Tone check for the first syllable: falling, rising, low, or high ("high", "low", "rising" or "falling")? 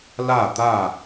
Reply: falling